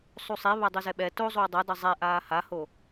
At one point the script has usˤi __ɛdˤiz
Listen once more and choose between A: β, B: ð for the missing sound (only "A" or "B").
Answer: A